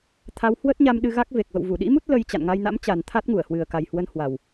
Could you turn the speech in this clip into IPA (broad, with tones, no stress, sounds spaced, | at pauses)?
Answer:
t̪ʰ a˨˦ w h w ə˦˥ t̚ ɲ a˧ m ɗ ɨ˧ ɣ a˦˥ k̚ v e˨˩ k̚ v ə̰˧˨ w v u˧˩ ɗ ḭ˧˥ m u˦˥ t̚ l ə˧ j t͡ɕ a̰˧˨ n ŋ a˧ j n a̰˧˥ m t͡ɕ a˨˩ n t̪ʰ a˦˥ t̚ ŋ u˧˩ ə̯ h w ɨ˨˩ ə̯ k a˨˩ j h w ə˧ n h w a˨˩ w